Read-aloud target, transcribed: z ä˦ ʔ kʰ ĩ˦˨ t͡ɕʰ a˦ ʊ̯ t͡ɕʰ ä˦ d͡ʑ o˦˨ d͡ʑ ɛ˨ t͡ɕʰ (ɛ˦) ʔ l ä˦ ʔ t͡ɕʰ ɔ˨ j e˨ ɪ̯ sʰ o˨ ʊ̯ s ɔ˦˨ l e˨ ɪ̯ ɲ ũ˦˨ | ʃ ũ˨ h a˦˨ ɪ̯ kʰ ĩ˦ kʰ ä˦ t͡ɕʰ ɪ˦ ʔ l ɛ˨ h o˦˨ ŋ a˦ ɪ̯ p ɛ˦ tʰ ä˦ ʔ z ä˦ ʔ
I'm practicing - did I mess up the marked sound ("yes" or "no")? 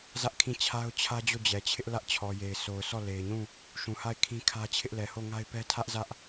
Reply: yes